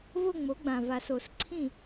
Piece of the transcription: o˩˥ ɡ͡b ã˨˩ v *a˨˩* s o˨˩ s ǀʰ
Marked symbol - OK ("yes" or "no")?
yes